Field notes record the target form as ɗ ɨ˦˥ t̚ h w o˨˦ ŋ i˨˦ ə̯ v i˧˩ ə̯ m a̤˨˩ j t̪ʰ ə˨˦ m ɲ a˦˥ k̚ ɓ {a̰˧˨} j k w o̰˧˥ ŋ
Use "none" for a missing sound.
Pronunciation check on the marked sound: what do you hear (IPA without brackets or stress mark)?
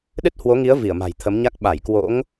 a˧˩